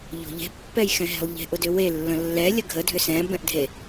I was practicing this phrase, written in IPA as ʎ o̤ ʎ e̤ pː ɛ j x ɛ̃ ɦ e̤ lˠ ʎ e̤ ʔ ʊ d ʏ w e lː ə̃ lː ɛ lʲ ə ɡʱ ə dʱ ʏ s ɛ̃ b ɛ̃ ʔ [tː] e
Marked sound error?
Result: yes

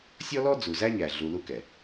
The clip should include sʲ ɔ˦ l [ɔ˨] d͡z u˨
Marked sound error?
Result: yes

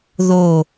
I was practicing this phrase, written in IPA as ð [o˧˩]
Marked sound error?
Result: no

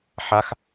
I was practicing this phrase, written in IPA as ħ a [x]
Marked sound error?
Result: no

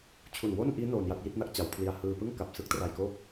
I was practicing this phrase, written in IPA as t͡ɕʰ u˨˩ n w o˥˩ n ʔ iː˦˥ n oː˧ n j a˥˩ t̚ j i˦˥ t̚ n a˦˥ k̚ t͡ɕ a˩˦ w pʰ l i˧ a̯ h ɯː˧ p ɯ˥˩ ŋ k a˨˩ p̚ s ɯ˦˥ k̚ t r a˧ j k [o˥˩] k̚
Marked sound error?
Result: yes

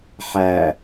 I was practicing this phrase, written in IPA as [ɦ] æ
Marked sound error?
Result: yes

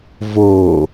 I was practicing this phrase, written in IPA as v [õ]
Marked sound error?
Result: yes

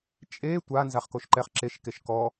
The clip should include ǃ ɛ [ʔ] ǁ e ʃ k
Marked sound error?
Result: yes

